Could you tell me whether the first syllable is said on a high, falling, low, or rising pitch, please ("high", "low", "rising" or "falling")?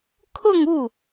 falling